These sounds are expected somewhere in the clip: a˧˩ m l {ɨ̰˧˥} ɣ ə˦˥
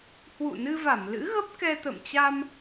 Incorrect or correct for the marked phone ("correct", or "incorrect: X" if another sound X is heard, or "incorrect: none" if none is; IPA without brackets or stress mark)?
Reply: correct